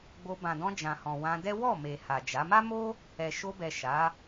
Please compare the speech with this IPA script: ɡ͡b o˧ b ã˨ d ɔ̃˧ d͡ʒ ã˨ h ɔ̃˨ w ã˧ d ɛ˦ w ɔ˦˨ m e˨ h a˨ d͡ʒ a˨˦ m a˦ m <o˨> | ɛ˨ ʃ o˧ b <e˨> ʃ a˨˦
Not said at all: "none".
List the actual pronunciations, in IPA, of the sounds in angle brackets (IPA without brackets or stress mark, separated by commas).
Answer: o˦, ɛ˨